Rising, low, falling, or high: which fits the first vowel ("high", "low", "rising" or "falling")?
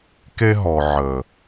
high